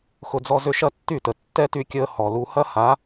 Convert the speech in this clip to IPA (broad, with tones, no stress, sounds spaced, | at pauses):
x ʊ˧ d͡z ɔ˦ z ʏ˦ ʃ ɐ˦ tː y˦˨ t ə˨ tː ɛ˦ t y˧ kʲ əː˧ h ɔ˨ l u˧ h ɐ˦ h a˨˦